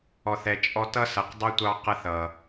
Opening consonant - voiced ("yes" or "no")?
no